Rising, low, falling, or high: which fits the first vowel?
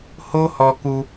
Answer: high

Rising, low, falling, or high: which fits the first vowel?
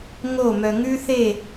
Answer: falling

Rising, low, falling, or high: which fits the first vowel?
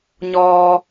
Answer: low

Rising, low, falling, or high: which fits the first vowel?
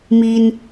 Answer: high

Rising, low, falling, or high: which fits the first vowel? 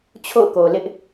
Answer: falling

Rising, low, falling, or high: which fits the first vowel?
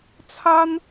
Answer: high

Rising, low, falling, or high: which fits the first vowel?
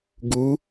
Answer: rising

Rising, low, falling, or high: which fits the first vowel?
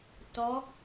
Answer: rising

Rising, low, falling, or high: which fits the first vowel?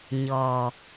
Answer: low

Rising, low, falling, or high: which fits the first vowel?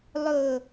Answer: low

